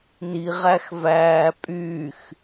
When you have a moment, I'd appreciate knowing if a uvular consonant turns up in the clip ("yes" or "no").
yes